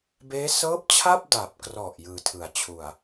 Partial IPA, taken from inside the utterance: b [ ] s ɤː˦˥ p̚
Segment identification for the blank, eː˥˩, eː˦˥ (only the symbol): eː˦˥